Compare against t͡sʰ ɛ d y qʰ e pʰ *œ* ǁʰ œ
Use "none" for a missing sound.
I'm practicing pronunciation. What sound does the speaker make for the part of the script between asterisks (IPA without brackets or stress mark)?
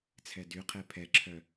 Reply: ɛ